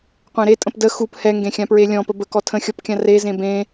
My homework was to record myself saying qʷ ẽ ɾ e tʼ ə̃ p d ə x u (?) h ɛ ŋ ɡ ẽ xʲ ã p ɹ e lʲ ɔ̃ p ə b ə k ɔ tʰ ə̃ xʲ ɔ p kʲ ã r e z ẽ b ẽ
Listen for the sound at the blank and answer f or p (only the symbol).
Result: p